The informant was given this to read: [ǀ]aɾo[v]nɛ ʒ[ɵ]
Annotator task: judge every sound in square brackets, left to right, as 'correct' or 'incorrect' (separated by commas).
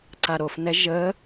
correct, incorrect, incorrect